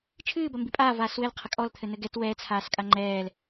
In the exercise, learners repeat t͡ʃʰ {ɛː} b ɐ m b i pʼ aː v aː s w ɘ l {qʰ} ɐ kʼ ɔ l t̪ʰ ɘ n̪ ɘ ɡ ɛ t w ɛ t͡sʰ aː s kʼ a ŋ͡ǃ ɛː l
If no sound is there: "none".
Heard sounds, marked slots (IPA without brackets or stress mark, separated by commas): ɨː, qʰ